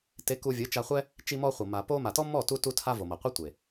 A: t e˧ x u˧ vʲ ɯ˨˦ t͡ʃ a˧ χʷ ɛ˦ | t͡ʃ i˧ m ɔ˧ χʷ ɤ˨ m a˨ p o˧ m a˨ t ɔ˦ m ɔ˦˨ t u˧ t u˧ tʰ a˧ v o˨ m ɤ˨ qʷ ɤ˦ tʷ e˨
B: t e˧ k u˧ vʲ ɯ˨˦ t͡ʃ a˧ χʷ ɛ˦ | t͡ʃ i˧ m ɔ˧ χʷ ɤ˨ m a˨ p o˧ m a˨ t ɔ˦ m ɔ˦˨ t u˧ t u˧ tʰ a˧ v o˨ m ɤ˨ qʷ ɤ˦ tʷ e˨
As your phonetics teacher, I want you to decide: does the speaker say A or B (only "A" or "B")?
B